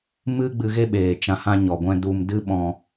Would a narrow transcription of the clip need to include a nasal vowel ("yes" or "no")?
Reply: yes